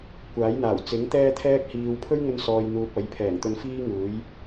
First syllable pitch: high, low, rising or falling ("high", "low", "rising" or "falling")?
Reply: rising